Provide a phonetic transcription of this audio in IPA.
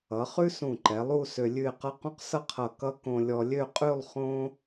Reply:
ʌ˩˧ χ ʉ˥ s ũ˧˩ ǃ ɛ˩˧ lˠ u˥˧ s ø˧ lʲ ʉ˥˧ ɪ̯ q ʌ˥ q ũ˥ q s ʌ˥ qʰ ʌ˧˩ k ʌ˥ k õ˧ lʲ ɔ˧ lʲ ø˥˧ qʼ ʉ˥˧ lˠ χ õ˥

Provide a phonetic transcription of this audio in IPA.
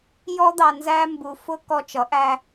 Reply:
j ɔ˦ d̪ ɑ˧ n z æ˦ m b u˧ f ʊ˦ k ɔ˧ t͡ʃ ʌ˨˦ ʔ æ˧

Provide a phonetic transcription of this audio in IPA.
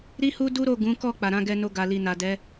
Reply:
ɾ i˦ h u˦ d u˦ ɾ o˦˨ ɡ ũ˨˦ k ɔ˦˨ k͡p a˨ ɾ ã˨˦ ɡ ɛ˧ n o˧ ɡ a˨ l i˨ n a˨ d ɛ˨˦

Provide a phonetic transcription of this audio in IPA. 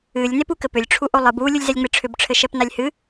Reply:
ɨ lʲ n e p u k ɘ p ʏ lʲ ʈ͡ʂʰ u ʔ o lˠ ɨ b u lʲ u lʲ z ɛ lʲ ŋ͡m e ʈ͡ʂʰ ʏ b ʈ͡ʂʰ ɘ ʃ ɛ p n a lʲ h ɨ

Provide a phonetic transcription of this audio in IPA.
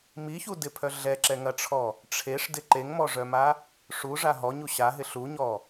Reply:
m i ç u d ɪ pʰ œ ɮ ɛ ǁ ɛ ŋ ɐ ʈ͡ʂʰ ɔ | ʈ͡ʂʰ e ʂ d ɪ ǃ e ŋ m ɔ ʐ œ m a | ʂ u ʐ a ɦ ɔ ɲ u ɕ a ɦ ɪ ɬ u ɲ ɔ

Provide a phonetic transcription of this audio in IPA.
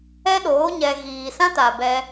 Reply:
ɛ˦ ɗ oː˨˦ ɲ ɛ˧ ɣ iː˨ s ã˦ t aː˨ b ɛ˧

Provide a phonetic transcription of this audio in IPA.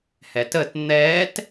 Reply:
h ɛ t ə t n̪ ɛ t

